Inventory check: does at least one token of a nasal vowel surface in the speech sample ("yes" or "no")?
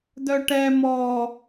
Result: no